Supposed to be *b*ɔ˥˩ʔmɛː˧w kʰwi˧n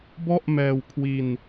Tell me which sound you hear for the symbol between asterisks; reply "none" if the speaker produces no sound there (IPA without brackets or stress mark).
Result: b